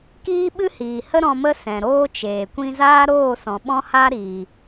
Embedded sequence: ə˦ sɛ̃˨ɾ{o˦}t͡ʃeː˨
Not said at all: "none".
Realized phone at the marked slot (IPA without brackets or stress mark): oː˦